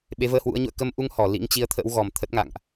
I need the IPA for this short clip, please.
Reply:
ɓ e˨˦ v əː˧ h w ṵ˧˥ ə̯ ɲ ṵ˧˨ ə̯ k ə˧ m ʔ u˧ ŋ h ɔ˧˩ l ḭ˧˥ ŋ t͡ɕ i˨˦ ə̯ t̪ʰ ə̰˧˥ w ɣ ɔ˨˩ m t̪ʰ ə˦˥ t̚ ŋ a̰˧˨ ŋ ʔ

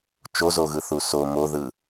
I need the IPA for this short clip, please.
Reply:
t͡ʃ o z o ɣ ɯ θ u s o m o ð ɯ

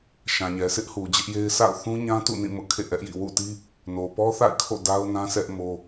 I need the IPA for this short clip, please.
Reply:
ʃ ã˨ ɲ ɛ˨ sʰ ɪ˦ ʔ h u˨ d͡ʑ ɪ˦ ʔ j e˦ ɪ̯ sʰ a̰˦˨ ʊ̯ θ ũ˦ ɲ ã˦ t ṵ˦˨ n ĩ˦˨ m ʊ˦ ʔ kʰ ḛ˦˨ ʔ ɛ˦ ʔ j ḭ˦˨ w ṵ˦˨ t i˦ | n o˨ p ɔ˦ θ a̰˦˨ ɪ̯ kʰ o̰˦˨ d a˦ ʊ̯ n ã˦ s ɛ˦ ʔ m o˦

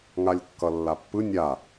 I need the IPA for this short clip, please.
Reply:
ŋ a lʲ kː ʌ lː a pː ɯ nʲ a

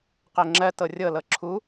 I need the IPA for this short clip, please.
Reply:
q ɜ ŋ͡ǁ ɜ t ɤ rʲ ɤ l ɤ ǁʰ u

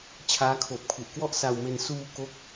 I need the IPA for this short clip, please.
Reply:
t͡ɕʰ aː˦˥ kʰ oː˨˩ p̚ kʰ u˨˩ ʔ k w ɔ˥˩ ʔ s a˧ w m e˧ n s uː˧ k o˦˥ k̚

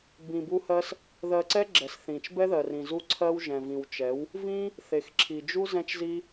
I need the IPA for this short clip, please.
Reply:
b ĩ˧ b u˦ h ɜ˦ s | ð ɜ˧ ǀ ɛ˦ ɡ͡ǁ ɛ˨ s θ ĩ˨ t͡ʃ b ɛ˦ ð ɜ˨ r ĩ˨ z u˧ ǀʰ ɜ˦ w ʒ ɛ̃˨ v ĩ˨ w t͡ʃ ɛ˨˦ w | v ĩ˦ | θ e˨ x ǁʰ i˨ d͡ʒ u˦ z ɛ̃˦ t͡ʃ z i˦

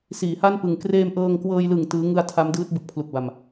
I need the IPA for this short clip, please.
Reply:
s iː˩˦ h a˥˩ n p ɯ˨˩ ŋ k r eː˧ m ʔ ɤː˧ ŋ k w ɤː˧ j l ɯ˨˩ ŋ t ɯː˦˥ ŋ ɯ˧ a̯ tʰ a˦˥ m d ɯː˦˥ t̚ b ɯ˨˩ k̚ pʰ l u˨˩ k̚ b a˨˩ m

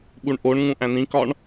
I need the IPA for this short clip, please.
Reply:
ɓ u ɳ ʔ o ɳ ŋ ũ ʔ æ̃ n ĩ k ɒ ɳ

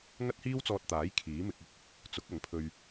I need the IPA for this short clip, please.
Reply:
ŋ ɐ˥ t̚ h iː˥ w t͡s ɔː˧ t̚ t̪ aː˨˥ j kʰ iː˨˥ m ɪ˧ k̚ ʊ˥ k̚ | t͡s ʊ˨˥ k̚ ɐ˨˥ ŋ pʰ ɵ˧ ɥ

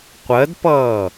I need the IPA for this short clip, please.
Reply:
qʷ ɜ d p ʌː

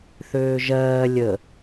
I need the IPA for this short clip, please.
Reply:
θ øː ʒ ɜː lʲ ə

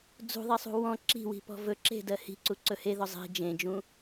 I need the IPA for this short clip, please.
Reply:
d͡z ṳ ðˤ i sˤ ṳ w ɔ̃ ǁ i̤ w i̤ p ɔ̤ v ɵ ǁ e̤ d ɜ h i̤ ǀ u ǀ ɵ h e ð ɔ zˤ i̤ d͡ʒ ẽ d͡ʒ ũ

